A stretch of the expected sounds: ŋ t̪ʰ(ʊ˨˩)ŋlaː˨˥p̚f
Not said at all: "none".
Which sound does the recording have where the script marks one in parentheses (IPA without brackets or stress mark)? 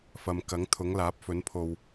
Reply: ʊ˨˥